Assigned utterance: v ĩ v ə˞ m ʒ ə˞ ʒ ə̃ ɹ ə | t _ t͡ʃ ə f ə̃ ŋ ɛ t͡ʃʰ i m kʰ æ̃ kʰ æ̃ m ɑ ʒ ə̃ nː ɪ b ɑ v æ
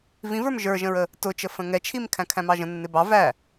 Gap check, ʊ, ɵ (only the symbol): ʊ